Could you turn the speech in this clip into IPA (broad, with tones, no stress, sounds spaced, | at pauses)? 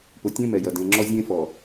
p ʊ˨ tʲ ẽ˦ m ɛ˨ j ɐ˨ d ẽ˨ ŋ͡ǁ ɔ˦ zʲ ẽ˦ f ɔ˨